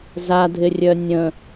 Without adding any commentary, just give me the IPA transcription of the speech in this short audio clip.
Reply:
z a dʱ ɪ rʲ œ nʲ ə̃

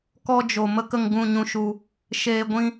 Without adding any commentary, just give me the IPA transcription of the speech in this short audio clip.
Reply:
k ɔ˧ d͡ʒ o˨ m ə˧ k ə˧ ŋ ɡ ũ˦˨ ɲ ũ˦ ʃ u˧ | ʃ eː˧ ɡʷ ĩ˦

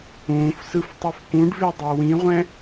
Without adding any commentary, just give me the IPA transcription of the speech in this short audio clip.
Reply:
ũː f s ɯ f tˤ i f k ũ ɖ v e dˤ o w ĩ ʁʷ ɛ̃

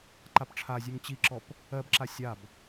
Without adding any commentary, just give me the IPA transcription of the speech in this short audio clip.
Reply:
ǃ a p ʈ͡ʂʰ a zʲ ʉ ŋ t͡ɕ i ǁ ɔ p | ɜ b ǁ a sʲ a b

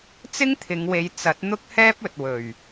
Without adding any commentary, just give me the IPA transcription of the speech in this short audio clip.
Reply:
t͡s ɪ˥ ŋ t̪ʰ ɪ˨˧ ŋ w e˨˧ j t͡s ɐ˨˥ t̚ n̪ ʊ˥ k̚ h ɛː˥ p̚ ɵ˨ t̚ w ɵ˨˩ ɥ

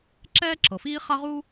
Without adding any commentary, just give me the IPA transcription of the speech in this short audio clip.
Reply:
ǁ ɛː˥ ǁ ɤ˩ f iː˥ χ a˥ ʁ u˥

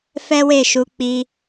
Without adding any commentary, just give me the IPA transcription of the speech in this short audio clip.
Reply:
f ɛ˦ w e˦˨ ʃ u˧ k͡p i˧

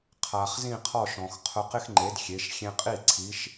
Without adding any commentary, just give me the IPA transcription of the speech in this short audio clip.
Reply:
qʰ a˩ χ z ĩ˥˩ qʰ ɔ˥˩ ʃ ɔ̃˩ x qʰ ʊ˧ q ɪ˥ x ŋ͡ǃ e˩˥ d xʲ e˩˥ ʃ xʲ ẽ˧ qʼ i˥˩ ǀʰ i˩˥ ʃ

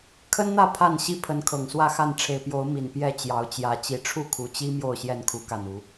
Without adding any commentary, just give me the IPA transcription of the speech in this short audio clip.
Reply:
kʰ ə˦ n n̪ ä˥˨ pʰ a˥˨ n ɕ i˥˨ pʰ ə˨˦ n kʰ ɤ˨˩ ŋ s w ä˥˨ x a˥˨ n ʈ͡ʂʰ e˨˩ ɪ̯ p j o˨˦ ʊ̯ m i˨˩ n p j ɛ˥˨ t͡ɕ j ɑ˨˦ ʊ̯ t͡ɕ j ä˨˦ t͡ɕ i˨˩ ʈ͡ʂʰ u˥˨ kʰ u˨˩ t͡ɕ i˦ m j o˥˨ ʊ̯ ɕ j ɛ˥˨ n kʰ u˨˦ k a˨˩ n u˨˦

